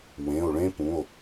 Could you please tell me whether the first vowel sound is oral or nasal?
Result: nasal